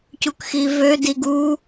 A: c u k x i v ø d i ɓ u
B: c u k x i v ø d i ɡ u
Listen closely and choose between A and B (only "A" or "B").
B